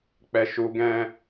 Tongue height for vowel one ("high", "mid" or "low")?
mid